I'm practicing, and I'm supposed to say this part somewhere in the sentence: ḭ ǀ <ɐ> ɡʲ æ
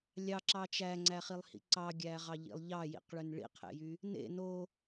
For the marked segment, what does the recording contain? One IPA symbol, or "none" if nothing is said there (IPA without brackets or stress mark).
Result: ɑ